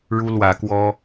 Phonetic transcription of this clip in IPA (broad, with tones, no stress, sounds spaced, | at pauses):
ɻ u˦ l w ä˨˦ k w ɔ˦